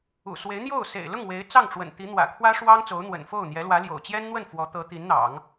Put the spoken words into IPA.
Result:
ṵ˨˩ s w e˧˥ ɪ̯ n̪ j o˥˩ ʊ̯ s ḛ˨˩ ɪ̯ l ʊ˥˩ ŋ w e˧˥ ɪ̯ t͡s ɑ˥˩ ŋ ʈ͡ʂ w ə̰˨˩ n t̪ i˧˥ n̪ w ä̰˨˩ kʰ w ä˥ ʂ w ɑ˥ ŋ t͡s o˧˥ ʊ̯ n̪ w ə̰˨˩ n f o˥˩ ʊ̯ n̪ j ɛ˧˥ l w ä˧˥ l j o̰˨˩ ʊ̯ t͡ɕ j ɛ˥ n n̪ w ə˥˩ n f w ɔ˧˥ t̪ ɤ˧˥ t̪ i˧˥ n n̪ ɑ̰˨˩˦ ŋ

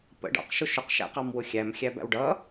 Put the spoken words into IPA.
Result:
p ə̰ ɖ ɑ̰ q ʃ ʊ ʃ ʊ q ʃ æ̰ q ɑ m w ʊ xʲ æ m xʲ æ b æ̰ w ɖ ʌ

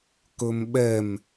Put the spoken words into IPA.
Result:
k ɵ m ɓ ɛ m

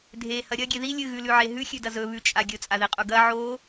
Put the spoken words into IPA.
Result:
dʱ e h ɐ ɾʲ ɐ ɡʲ e ð i lʲ ɨ ɣ ʉ l ʉ ʕ e ɦ ʉ xʲ ʉ d ɐ z ɵ β ʉ t͡ʃʼ a ɡʲ ɵ t͡sʼ a ð i qʼ u ɡ ɐ ʕ o

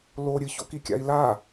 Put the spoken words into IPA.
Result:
l o ɾʲ ɨ ç o̰ k i kʲ a̰ i̯ l a

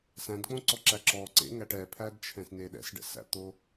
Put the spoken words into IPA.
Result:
s æ̃ d k͡p õ ǀ ɔ ǁ æ ǁ ɔ ǀ ḛ ŋ æ ʈ ɛ pʰ æ d t͡ʃʰ ɛ̃ s n e ɗ ɛ̰ s ɖ ɛ̰ s æ̰ t̪ o

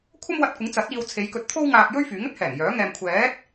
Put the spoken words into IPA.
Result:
kʷʰ ɐ˥ m w ɐ˧ t̚ kʷ ɪ˨˥ ŋ t͡s ɐ˨˥ t̚ iː˧ w t͡sʰ e˨˧ j k ɵ˧ t̚ t̪ʰ o˥ w ŋ aː˧ k̚ j ɵ˥ ɥ f yː˨˥ ŋ ɵ˥ t̚ h ɛː˨˩ ŋ j œː˨˥ ŋ ɛː˧ m kʷʰ ɛː˨˥ t̚

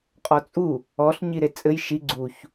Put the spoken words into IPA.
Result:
qʼ ɔ t͡sʼ u | ɔ ɬ ɲ i ɾ e t͡sʼ ɘ j ʃ i ɡ͡ǀ u ç

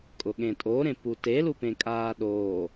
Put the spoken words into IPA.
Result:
kʼ ʊ ɠ ẽ tʼ o ɾ ẽ p u t e l u p ẽ kʼ aː ɗ oː

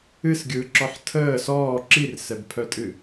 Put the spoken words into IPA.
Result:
ɨ s ɡʲ ɯː ǁ ɔ ħ tʰ əː s ɔː ǁ i r s ɛ b pʰ œ tʼ ɨ

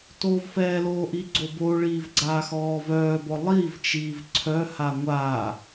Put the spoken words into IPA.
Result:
t oː v f ɛː l oː ʔ i ɡ͡ǀ o b o ɭ iː v ɡ͡ǀ aː x ɔː v œː b ɔ lˠ i v t͡ʃ iː v ǀʰ œ h a ŋʷ aː

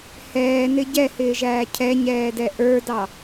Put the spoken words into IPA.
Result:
h ɛː n ɪ ɟ ɛ h ɪː ʒ æː cʰ ɛ ɲ ɛː d ɛ ʔ ə˞ d ɑ

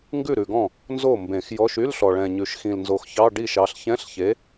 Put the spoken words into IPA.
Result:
ŋ ɡ ʉ˥˩ ɾ ʉ˨˩ ɡ ɔ̃˥˩ | n z o˥˩ m b ẽ˨˩˦ x j ɔ˧˥˧ ʃ y˧˥˧ l ɬ ɔ˨˩ ɭ ɛ̃˨˩ ɲ ʉ˨˩ ʃ x ĩ˨˩ l n z o˨˩ x ç ɑ˧˥˧ ɖ i˥˩ ʃ ɑ˨˥ ɬ ç ɛ̃˧˥˧ ɬ ç e˨˥

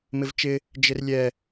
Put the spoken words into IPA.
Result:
m ɪ v t͡ʃ ɪ | d͡ʒ ɪ r lʲ ɛ

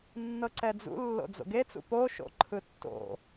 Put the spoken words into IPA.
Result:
nː ɤ ǀ ɛ d͡z ṵ lː o̰ d͡z o̰ ɡ e t͡s ṵ p o ʃ o̰ ǃʰ ɯ tː o̰

